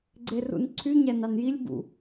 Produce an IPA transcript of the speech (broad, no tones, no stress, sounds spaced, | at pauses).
ɡ͡ǀ e r ṵ n ǀʰ y ɲ æ n ɑ n j i lʲ b ṵ